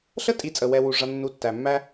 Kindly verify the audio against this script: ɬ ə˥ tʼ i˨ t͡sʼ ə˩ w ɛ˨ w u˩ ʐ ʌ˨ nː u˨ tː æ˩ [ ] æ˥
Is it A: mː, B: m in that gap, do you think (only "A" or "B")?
A